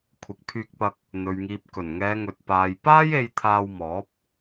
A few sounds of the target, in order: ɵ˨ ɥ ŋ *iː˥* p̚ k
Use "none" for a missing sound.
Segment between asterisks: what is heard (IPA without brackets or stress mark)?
iː˨